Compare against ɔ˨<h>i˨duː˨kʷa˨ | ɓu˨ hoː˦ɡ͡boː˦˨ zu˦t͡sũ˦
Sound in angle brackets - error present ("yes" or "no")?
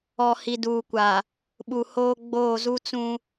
no